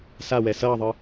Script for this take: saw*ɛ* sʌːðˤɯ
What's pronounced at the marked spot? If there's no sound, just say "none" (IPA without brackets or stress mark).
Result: ɛ